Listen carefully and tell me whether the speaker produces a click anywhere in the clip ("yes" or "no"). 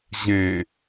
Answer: no